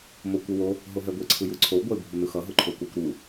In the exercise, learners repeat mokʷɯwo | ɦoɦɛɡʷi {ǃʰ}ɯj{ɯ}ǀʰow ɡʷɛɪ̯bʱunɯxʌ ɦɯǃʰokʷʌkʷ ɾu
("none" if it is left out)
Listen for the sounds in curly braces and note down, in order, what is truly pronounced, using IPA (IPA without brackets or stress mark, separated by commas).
ǀʰ, ɯ